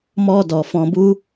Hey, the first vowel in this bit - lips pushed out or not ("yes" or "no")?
yes